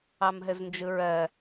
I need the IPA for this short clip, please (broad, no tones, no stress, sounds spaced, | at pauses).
ɑ m ɦ ɘ z n d͡ʒ ɯ ɹ ɜ